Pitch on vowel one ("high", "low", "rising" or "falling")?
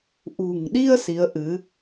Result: low